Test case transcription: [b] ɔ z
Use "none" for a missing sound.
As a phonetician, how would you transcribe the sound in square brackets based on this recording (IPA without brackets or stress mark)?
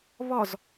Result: β